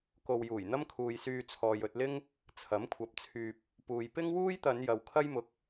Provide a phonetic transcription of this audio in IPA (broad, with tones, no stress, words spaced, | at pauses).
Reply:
ko˨wjuː˨˩jn̪ɐ˥mkʰuː˨j syː˧t͡sʰɔː˨jɵ˧t̚lɪ˥ŋ | t͡sʰɐ˨˥mkʷʰɐ˨˥p̚t͡sʰyː˨p̚ | puː˨j pɪ˥ŋwuː˥jt̪ɐ˨˧n jɐ˨w kʰɐ˥jmʊ˨˥k̚